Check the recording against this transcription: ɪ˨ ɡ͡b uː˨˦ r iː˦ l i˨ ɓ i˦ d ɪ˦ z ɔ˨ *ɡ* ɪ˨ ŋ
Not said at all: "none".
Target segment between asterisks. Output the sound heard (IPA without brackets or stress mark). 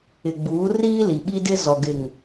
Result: ɡ